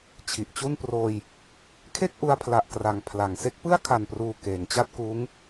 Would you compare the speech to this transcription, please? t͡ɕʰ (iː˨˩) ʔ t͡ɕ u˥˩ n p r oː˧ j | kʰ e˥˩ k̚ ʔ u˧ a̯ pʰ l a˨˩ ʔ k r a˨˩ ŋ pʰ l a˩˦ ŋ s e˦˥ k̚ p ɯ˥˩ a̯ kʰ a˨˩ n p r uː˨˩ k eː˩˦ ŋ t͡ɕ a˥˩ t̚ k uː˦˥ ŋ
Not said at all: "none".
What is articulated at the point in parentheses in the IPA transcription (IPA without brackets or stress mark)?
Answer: i˨˩